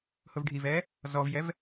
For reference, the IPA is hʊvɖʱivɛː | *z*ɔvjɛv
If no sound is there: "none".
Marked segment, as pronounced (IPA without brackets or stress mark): z